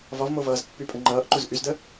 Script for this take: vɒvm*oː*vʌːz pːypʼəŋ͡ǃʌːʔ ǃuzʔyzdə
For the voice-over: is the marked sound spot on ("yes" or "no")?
no